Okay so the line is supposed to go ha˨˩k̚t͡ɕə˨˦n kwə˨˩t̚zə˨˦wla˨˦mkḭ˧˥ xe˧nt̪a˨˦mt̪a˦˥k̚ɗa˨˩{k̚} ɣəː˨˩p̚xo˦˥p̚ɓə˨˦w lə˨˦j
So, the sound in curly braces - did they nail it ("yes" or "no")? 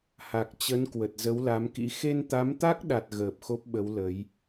no